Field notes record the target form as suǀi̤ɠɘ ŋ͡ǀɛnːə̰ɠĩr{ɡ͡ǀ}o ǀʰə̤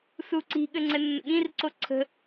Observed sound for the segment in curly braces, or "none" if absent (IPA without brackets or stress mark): ǀ